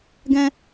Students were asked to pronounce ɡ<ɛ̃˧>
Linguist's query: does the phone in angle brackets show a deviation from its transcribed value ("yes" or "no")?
no